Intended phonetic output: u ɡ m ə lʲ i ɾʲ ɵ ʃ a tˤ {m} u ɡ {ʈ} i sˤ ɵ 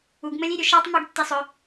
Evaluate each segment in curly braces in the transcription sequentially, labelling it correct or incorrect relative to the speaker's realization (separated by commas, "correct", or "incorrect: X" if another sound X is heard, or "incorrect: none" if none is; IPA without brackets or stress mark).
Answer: correct, incorrect: tː